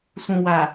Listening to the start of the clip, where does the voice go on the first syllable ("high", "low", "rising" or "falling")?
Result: low